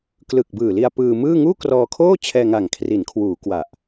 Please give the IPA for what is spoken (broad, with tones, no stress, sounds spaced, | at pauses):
k l ɯ˨˩ k̚ b ɯː˨˩ l i˧ a̯ p ɯː˧ m ɯː˥˩ ŋ uː˥˩ k r ɔː˧ kʰ oː˥˩ t͡ɕʰ ɛː˧ ŋ a˨˩ ŋ kʰ r i˩˦ n kʰ w uː˩˦ k w a˨˩ ʔ